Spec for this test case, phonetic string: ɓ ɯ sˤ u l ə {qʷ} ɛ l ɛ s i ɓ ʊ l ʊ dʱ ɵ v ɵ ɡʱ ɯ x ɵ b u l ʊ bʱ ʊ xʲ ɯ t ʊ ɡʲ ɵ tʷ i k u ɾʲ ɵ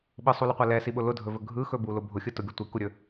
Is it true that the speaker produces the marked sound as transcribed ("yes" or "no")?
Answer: yes